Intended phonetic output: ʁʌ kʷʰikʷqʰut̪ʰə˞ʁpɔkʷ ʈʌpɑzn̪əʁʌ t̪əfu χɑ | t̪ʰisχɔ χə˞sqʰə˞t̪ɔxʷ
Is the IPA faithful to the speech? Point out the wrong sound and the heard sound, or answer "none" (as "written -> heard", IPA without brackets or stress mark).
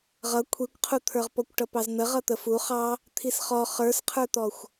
none